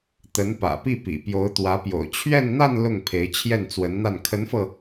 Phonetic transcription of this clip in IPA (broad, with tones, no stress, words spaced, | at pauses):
t̪ə˧˥n pä̰˨˩pi˥˩pḭ˨˩ pjo˧˥ʊ̯t̪wä˧˥pjo̰˨˩ʊ̯ t͡ɕʰɥɛ˥˧n n̪a˥˧n lʊ˥˩ŋ pʰe˧˥ɪ̯ t͡ɕʰjɛ˥˩nt͡swə˧˥nn̪a˥˩n kʰə˧˥nfɤ˧